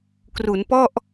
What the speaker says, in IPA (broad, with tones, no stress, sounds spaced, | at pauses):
k r u˩˦ n p ɔ˥˩ ʔ